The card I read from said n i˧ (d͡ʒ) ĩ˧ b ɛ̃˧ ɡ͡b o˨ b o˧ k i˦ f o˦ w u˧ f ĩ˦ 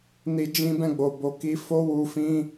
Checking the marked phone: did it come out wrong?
no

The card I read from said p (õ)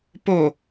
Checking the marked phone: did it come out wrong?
yes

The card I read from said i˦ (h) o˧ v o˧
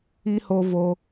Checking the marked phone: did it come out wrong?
no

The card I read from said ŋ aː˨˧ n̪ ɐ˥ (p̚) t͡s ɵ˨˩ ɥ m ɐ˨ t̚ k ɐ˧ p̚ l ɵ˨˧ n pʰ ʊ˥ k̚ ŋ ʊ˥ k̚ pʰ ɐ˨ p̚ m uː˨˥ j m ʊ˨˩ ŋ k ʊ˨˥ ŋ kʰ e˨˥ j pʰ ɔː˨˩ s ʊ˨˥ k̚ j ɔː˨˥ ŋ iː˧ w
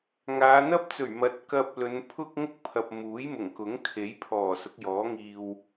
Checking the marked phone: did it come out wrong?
no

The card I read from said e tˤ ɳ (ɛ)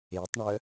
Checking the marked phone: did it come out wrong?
yes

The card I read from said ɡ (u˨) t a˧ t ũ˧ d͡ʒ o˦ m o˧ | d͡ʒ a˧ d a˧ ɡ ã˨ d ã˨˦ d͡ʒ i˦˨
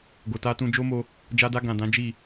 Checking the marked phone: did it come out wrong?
yes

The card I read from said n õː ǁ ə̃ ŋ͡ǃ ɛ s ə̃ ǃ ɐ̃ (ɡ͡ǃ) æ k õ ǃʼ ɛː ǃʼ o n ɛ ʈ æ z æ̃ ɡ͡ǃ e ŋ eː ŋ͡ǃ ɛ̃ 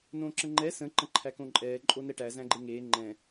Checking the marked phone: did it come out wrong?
yes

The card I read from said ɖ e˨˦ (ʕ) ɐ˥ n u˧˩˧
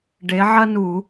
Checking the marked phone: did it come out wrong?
no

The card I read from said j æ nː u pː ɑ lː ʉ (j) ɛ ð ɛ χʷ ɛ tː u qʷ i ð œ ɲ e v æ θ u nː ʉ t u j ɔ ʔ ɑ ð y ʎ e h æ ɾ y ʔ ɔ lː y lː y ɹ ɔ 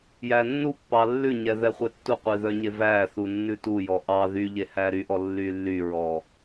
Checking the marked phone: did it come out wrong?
yes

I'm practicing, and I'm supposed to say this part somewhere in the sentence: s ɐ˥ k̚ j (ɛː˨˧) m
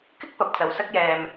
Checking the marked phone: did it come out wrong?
yes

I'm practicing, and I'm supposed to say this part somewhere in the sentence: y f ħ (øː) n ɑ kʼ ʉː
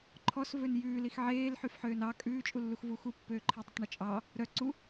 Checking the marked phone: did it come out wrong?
no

